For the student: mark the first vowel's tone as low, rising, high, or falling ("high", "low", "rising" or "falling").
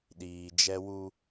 low